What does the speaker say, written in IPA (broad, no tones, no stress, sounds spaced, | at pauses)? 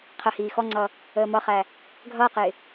qʰ ə h iː x ɔ ŋ͡ǀ ʌ | əː m ʌ χ æ | ɡʱ ʌː q ɪː